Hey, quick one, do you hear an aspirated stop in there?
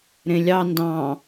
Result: no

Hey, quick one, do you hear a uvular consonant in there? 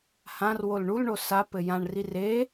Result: no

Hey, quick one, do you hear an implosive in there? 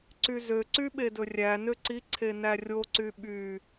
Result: yes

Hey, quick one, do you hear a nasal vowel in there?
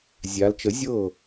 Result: no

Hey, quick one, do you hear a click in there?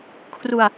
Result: no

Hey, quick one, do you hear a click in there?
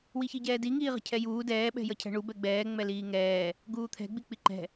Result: yes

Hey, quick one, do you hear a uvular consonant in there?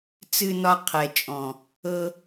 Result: yes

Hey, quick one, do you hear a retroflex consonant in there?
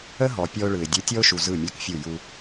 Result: yes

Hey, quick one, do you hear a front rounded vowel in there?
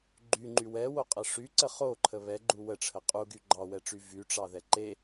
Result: yes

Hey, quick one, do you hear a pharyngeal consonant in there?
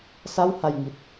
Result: no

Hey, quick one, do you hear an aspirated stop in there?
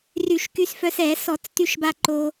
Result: no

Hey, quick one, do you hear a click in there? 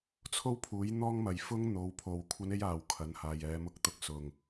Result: no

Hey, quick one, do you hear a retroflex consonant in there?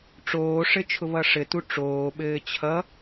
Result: yes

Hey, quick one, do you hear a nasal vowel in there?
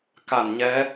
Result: no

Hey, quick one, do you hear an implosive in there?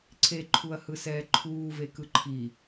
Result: no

